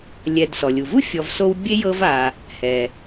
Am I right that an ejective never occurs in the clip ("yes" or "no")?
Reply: yes